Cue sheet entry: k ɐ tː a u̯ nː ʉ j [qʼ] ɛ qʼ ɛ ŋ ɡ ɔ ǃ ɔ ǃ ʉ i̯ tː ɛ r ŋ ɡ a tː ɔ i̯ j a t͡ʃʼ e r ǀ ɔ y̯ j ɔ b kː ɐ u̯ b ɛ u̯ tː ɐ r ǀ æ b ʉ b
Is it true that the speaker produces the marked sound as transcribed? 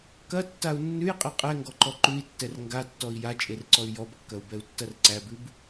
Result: yes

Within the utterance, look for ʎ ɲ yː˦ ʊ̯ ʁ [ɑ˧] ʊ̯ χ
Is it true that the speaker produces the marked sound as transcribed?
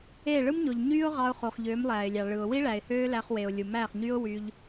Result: yes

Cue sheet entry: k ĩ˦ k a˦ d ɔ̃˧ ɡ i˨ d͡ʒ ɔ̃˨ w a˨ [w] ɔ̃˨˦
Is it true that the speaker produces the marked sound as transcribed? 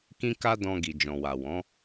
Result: yes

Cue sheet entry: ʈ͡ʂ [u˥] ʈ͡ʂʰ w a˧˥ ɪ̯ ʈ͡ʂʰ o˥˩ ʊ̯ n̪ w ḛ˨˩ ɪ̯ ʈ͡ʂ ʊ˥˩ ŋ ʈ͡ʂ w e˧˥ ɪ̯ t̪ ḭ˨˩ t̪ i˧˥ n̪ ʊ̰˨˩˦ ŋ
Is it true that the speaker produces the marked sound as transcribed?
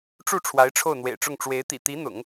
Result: no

